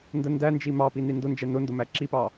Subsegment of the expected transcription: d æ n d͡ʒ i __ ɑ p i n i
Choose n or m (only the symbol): m